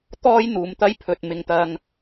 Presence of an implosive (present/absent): absent